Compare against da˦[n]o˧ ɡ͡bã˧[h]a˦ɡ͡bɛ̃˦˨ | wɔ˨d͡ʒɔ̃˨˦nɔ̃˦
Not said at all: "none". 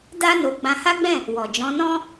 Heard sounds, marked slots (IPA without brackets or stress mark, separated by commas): n, h